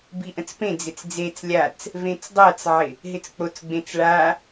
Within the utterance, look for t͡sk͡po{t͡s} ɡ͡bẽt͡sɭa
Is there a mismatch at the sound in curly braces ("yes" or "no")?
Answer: no